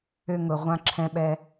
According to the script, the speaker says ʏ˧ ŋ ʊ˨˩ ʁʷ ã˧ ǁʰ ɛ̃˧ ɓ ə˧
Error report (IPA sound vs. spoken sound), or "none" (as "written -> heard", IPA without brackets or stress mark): ə˧ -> ɛ˧